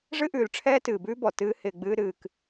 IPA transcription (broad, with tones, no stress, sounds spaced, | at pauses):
ʐ ɨ˦ ʔ ʉː˨ l ʈ͡ʂʰ ɛː˦ t ɨː˨ b ʉː˦ b ɔ˨ t ɨː˦ h ɪː˧ ɡ͡b ɨː˦ ɾ ɨː˧ k